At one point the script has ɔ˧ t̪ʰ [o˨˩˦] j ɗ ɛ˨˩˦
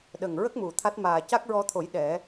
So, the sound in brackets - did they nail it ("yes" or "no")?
yes